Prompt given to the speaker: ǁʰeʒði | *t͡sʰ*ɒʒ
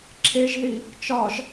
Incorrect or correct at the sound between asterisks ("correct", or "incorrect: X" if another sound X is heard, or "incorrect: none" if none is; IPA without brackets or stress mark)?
incorrect: t͡ʃ